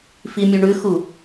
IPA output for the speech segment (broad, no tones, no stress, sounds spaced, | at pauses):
f i mʲ u ɳ ʉ x u